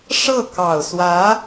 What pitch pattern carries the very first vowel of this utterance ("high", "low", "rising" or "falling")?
falling